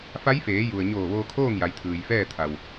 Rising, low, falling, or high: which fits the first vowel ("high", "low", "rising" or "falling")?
rising